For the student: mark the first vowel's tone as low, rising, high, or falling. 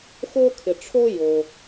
high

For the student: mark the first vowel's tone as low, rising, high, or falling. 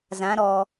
rising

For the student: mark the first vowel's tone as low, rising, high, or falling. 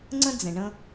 high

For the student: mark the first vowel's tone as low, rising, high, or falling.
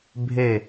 falling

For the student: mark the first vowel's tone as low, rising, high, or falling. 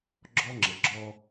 high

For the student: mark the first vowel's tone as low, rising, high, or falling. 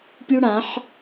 high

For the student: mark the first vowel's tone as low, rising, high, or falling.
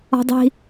high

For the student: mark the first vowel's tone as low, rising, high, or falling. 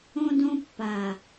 high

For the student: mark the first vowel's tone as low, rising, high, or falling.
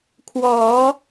rising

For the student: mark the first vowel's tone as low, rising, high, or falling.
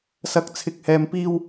rising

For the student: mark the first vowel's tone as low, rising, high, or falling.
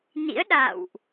rising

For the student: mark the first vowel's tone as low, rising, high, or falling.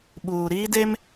low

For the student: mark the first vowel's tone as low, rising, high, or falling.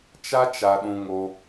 high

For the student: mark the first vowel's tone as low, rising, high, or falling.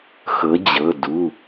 rising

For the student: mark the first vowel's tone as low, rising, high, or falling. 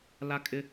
high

